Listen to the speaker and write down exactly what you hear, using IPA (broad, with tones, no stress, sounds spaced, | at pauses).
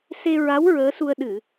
s e˧ ɹ a˧˥ w ɹ əː˧˥ s u˧ ə̯ ɗ ɨ˨˩˨